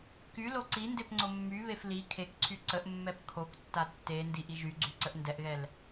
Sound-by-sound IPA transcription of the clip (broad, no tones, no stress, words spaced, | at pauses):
kylo ǀindep ŋ͡ǀomːyβef li kʰekǀʰy ǀəʔ mːɛpkʰoktːa tːe ndiʔiʒyɡ͡ǀy ǀəʔndɛʔɣɛl